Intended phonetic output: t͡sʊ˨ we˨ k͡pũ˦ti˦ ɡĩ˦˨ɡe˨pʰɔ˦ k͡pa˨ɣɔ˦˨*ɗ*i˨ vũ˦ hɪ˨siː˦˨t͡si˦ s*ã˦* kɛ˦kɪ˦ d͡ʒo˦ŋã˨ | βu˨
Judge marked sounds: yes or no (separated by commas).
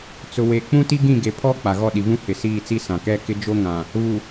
yes, no